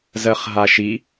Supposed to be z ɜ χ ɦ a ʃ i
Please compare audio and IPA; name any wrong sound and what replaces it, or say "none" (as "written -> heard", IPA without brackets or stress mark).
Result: none